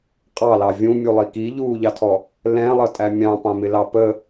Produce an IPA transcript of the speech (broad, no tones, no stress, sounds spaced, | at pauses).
qʼ ɑ l ɑ vʲ ũ mʲ u lˠ i k i ʎ uː ʎ ɑ tʰ ɔ | l ɛ̃ lˠ ʌ tʼ æ mʲ ɑ̃ p ɑ̃ m ɪ l ɑ p ə